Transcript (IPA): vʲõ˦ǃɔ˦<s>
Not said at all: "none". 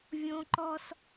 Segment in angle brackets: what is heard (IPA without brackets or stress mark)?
s